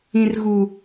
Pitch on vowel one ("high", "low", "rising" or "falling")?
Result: low